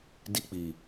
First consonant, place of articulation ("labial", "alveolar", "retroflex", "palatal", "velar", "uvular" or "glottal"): alveolar